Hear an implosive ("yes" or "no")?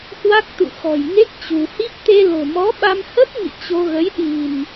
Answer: yes